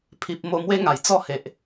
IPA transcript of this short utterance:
pʰ i˨ p̚ m o˧ m w e˦ ŋ a˨˩ j t͡s ɔ˥˧ h e˨ ʔ

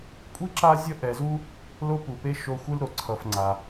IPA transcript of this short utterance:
kʷʼ i˥ ǁ a˦ zʲ ʌ˦ ʔ ɛ˨ z u˦ | l o˥ p u˩ p e˥ ʃ o˦ xʷ ɯ˥ l ɾ o˩ ǀʰ ʌ˨ f ŋ͡ǀ a˩

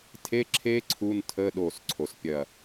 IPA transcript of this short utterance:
tʰ e˧˥˧ ǁʰ e˦˥ ǀʰ u˧˥˧ n tʰ əː˧˥˧ ɗ oː˧˩ s ǀʰ o˩ s pʲ ɐ˧˩

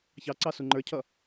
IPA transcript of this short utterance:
ç ɑ ǀ ɑ s u ŋ͡ǃ ə˞ cʰ ʌ

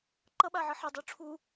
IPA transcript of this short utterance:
ǃ ʌ ɓ a ʕ ʌ ħ ɛ dˤ u ʈ͡ʂʰ u

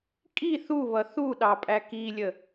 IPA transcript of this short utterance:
kʼ i θ u β ʌ θ u ɗ ɑ pʼ æ k i lʲ ə

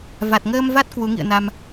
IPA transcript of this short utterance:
v a˨˩ t̚ ŋ əː˧ m v a˦˥ t̚ k w u˨˦ ŋ ḭ˧˨ ə̯ n a˧ m

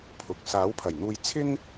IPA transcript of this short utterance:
pʰ ʊ˨˥ k̚ s aː˨˥ w pʰ ɐ˨˩ j n̪ uː˧ j t͡sʰ ɪ˥ ŋ

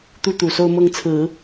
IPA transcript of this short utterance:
t̪ u˥ t̪ u˨˩ s o˥˧ ʊ̯ m ɤ˥˩ ŋ t͡sʰ ɹ̩˨˩˦

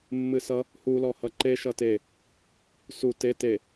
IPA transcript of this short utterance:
mː ɨ s ʌ | h u l ɔ h ʌ ǃ e ʃ ʌ t e | s u t e t e

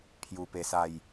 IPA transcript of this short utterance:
pʰ j u˧ p e˧ s a˥˧ j

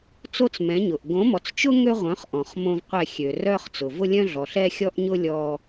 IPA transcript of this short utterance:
t͡s o˦ t͡s m ɛ̃˨˦ ɲ ʊ˨ ʔ ɡ õ˨˦ m ɔ˨ t͡s t͡ʃ ʊ˦ ŋ ø˦ ʁʷ œ̃˨˦ χ ʔ ɔ̃˨ χ m õ˦ v qʷ ɛ˦˨ xʲ ø˨ r œ˦ χ t͡s ʊ˨ v ʊ˦ lʲ œ̃˦ ɮ ɔ˨ ɬ ɛ˦ xʲ ɔ˦ ʔ ɲ ʊ˦ lʲ ɔ˦

